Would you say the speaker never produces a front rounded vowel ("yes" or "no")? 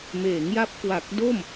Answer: yes